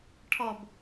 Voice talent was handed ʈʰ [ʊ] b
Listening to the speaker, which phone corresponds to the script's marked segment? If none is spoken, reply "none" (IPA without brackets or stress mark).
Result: ɔ